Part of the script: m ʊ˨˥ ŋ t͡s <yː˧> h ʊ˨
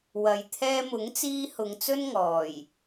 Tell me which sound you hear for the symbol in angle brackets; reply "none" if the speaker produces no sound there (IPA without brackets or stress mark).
iː˧